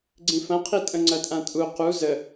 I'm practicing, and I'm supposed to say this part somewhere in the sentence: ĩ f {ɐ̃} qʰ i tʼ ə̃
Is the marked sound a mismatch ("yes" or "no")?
no